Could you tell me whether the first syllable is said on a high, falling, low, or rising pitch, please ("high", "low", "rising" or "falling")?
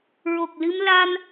low